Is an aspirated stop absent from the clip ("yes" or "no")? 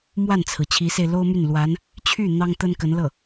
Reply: no